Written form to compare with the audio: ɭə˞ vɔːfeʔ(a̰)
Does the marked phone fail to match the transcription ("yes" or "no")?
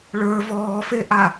yes